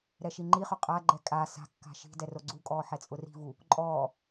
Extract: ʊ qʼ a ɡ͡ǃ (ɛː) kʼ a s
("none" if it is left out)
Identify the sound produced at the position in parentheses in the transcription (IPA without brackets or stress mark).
ɛ